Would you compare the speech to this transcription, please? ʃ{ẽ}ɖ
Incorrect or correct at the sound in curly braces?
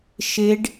incorrect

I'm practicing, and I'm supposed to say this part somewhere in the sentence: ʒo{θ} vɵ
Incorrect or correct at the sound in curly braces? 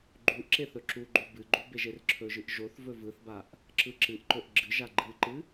correct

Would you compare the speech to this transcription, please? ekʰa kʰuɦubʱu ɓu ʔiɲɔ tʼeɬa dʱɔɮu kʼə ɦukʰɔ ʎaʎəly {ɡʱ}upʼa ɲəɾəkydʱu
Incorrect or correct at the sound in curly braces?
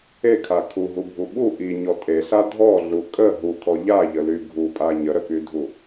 correct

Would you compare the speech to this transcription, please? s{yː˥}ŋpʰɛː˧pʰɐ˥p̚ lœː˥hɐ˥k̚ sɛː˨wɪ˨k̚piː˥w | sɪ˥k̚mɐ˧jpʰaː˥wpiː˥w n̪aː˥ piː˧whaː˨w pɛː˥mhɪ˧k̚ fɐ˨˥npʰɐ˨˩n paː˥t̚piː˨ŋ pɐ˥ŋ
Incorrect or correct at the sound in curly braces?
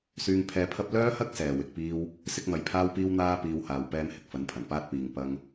incorrect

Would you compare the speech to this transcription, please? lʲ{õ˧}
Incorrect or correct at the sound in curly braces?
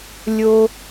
incorrect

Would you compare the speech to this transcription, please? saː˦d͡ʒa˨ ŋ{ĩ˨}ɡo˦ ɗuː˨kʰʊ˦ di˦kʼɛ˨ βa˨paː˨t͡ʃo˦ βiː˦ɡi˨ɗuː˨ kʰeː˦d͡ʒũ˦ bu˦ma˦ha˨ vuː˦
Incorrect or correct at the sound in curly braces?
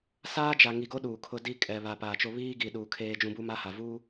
incorrect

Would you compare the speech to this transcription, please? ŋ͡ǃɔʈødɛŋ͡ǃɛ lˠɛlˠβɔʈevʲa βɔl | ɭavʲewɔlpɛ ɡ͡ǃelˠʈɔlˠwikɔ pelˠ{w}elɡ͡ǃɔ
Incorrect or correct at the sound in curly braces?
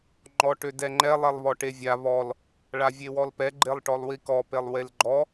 correct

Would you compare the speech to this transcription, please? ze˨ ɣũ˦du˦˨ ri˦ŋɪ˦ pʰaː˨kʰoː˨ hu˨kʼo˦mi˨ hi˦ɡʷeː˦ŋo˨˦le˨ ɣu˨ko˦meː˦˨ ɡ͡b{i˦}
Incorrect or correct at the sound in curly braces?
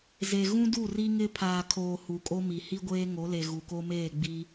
correct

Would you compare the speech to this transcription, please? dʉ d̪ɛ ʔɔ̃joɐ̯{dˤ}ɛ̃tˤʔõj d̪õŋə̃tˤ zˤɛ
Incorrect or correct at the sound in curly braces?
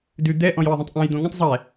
incorrect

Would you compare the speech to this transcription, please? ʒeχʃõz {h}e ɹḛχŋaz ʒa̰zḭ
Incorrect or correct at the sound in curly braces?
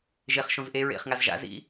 incorrect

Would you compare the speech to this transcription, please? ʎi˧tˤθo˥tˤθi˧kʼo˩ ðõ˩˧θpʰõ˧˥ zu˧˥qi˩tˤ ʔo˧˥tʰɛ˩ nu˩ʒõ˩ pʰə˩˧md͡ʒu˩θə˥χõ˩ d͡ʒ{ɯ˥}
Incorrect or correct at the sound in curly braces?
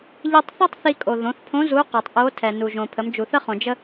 incorrect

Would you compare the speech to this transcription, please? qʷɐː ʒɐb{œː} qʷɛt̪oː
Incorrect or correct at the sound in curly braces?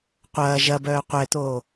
correct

